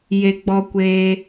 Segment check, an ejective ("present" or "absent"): absent